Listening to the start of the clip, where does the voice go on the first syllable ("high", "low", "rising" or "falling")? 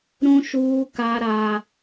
high